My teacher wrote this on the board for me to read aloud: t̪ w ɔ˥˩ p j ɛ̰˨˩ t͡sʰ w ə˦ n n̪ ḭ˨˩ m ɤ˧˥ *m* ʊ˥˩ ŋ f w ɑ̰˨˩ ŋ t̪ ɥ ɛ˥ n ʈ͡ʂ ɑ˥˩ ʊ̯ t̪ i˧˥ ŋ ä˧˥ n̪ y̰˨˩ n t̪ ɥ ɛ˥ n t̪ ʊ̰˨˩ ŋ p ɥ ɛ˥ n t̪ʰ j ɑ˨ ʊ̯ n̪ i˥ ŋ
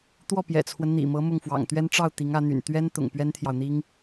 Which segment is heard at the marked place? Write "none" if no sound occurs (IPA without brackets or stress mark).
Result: m